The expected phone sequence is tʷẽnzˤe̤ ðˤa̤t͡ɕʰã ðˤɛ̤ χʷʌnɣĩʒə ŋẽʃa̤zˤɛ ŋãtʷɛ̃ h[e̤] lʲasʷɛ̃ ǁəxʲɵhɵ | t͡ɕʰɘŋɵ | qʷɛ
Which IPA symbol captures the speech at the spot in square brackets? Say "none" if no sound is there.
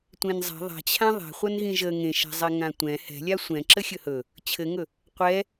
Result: ɛ̤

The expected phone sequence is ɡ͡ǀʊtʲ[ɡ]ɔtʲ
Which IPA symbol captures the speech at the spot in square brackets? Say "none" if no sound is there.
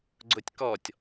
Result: k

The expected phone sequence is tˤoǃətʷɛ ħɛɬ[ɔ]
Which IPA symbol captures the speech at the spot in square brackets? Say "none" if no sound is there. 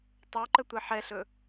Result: ɵ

